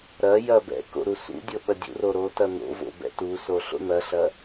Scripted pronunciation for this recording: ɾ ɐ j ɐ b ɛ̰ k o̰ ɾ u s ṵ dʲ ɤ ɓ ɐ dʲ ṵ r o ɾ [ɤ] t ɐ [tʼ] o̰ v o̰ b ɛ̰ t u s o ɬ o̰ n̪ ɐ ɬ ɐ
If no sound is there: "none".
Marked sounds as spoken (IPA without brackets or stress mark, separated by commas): o, n̪